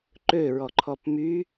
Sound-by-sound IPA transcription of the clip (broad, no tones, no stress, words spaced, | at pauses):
ǃøɹɔǃʰɔp my